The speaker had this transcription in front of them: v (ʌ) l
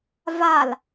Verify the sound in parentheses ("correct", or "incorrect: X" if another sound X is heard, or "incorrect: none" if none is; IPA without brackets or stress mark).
incorrect: a